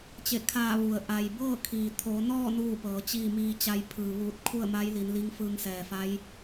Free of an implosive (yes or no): yes